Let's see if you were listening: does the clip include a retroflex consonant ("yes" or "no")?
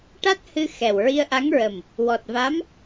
yes